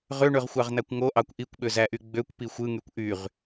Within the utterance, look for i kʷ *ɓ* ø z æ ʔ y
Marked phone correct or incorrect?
correct